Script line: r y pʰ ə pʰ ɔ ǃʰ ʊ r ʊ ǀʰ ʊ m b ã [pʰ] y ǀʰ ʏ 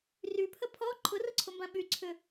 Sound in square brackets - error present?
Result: yes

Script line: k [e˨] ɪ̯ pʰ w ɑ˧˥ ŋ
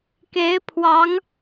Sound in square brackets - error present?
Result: yes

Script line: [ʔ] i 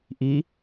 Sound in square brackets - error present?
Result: no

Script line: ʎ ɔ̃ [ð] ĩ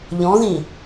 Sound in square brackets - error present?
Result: no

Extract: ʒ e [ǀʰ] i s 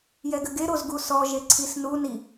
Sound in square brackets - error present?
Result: no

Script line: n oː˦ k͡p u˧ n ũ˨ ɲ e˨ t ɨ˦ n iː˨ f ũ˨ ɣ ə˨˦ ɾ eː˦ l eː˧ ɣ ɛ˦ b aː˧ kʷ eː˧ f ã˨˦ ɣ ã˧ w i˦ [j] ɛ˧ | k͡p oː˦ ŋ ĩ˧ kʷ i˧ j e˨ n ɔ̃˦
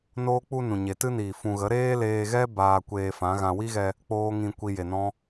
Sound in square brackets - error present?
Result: yes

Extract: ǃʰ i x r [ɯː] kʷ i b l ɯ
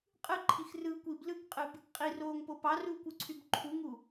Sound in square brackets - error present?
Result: no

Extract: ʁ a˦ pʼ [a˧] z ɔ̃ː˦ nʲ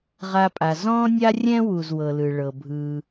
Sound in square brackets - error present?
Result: no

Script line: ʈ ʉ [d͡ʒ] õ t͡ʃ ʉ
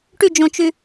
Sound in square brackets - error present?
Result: no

